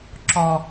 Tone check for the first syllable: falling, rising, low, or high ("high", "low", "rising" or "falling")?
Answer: low